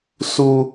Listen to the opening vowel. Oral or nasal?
oral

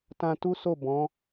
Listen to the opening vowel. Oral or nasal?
nasal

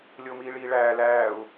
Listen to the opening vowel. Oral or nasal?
oral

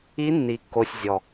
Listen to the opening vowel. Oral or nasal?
oral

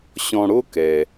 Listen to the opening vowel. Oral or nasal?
nasal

